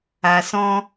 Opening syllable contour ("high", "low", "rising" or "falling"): low